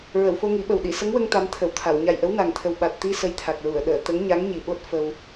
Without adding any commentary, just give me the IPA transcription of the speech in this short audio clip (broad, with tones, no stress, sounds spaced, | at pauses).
ɹ ə˨˩˨ w f o˧ ŋ i˨˩˦ ɓ ə˨˩ w ɗ i˨˩˨ s ə˧˥ ŋ w ə˧ ŋ t̪ a˧˥ m t̪ʰ ə˨˩˨ w t̪ʰ a˨˩˨ w ɲ a˨˩ j ʔ ə˧˥ w n a˨˩ ŋ t̪ʰ ə˨˩ w ɓ a˨˩ t̚ t̪ i˧ s ə˧ j t̪ʰ a˨˩ k̚ ɹ u˨˩˨ ə̯ ɗ əː˨˩˨ t̪ ə˧˥ ŋ ɲ a˧˥ ŋ ɲ i˨˩ ɓ o˦˥ t̚ f ə˧ w